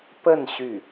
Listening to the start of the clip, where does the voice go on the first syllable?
falling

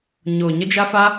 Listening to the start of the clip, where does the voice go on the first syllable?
low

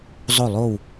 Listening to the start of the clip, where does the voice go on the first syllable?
falling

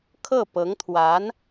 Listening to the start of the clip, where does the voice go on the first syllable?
falling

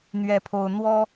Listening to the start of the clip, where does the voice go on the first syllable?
high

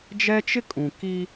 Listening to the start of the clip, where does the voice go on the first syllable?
high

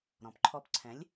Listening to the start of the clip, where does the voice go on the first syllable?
low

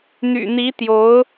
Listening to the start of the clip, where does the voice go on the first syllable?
low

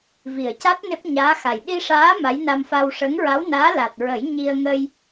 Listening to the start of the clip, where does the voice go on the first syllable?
low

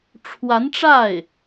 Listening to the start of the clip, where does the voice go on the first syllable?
rising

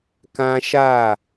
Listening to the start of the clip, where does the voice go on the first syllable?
high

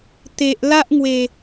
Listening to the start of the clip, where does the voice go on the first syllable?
low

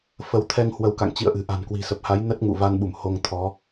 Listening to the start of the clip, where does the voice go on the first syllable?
rising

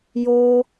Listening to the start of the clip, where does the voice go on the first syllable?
high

